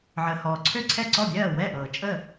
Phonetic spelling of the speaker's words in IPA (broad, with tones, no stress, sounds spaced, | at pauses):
ʕ əː˩ h ɔː˩ ǀʰ ø˥˩ ǀʰ ɛ˥˩ ǀ ɔ˥˩ bʲ ɜː˥˩ w ɛ˥˩ ʔ ɤː˩ t͡ʃʼ ə˥˩